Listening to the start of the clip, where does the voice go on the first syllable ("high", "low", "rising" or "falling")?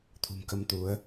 low